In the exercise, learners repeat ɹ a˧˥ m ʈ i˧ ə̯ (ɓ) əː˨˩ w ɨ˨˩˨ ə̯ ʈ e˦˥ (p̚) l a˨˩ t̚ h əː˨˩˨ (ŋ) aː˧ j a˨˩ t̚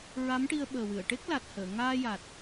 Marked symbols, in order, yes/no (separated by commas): yes, no, yes